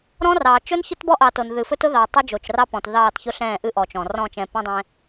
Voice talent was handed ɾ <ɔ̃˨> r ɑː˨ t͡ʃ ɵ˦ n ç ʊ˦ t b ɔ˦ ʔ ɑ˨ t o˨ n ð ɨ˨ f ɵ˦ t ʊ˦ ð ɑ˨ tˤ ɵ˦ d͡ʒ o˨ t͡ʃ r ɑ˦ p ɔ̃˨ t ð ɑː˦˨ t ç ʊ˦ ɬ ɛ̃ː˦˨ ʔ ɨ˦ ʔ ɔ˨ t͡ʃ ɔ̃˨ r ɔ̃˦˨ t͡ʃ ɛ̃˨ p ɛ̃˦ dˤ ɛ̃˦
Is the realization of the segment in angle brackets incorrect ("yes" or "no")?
yes